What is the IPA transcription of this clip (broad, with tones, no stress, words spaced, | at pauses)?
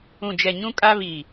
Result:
ũ˨d͡ʒɛ˨ɲũ˦ kʼa˦ βiː˨